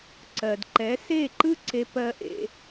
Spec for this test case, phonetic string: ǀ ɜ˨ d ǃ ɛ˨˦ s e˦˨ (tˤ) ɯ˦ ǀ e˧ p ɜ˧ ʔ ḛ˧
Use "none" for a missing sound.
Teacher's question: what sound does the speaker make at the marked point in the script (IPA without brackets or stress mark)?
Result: ǃ